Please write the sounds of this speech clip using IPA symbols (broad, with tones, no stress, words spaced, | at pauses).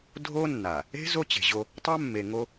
dʱo˦nːa˨ | e̤˦ zo˦t͡ɕe̤˨ʑo˦ | tˤa˦mːe˨ŋo˦